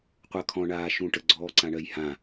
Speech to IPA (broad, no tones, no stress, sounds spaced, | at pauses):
qʷ ɜ kʰ ɔ̃ ɳ aː ʃ ũ ʈ ə ɡ͡ǀ ɔː ǀ ã ɳ ɜ j h ã